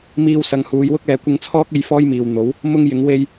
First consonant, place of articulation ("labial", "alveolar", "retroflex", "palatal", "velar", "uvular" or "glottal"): labial